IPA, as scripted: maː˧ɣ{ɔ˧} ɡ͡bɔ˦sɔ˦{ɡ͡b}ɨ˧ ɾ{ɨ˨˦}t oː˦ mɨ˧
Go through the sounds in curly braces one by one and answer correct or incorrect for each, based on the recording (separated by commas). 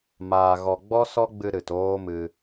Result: correct, correct, incorrect